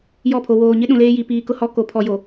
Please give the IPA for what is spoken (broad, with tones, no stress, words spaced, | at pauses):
jɔ˦˨pʰo˨ woː˨ɲɪ˦ ɗũ˨leː˦ji˨ piː˨kʊ˦˨ hɔ˦ko˨pʰɔ˨jo˨